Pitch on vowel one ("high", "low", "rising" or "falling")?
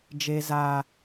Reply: low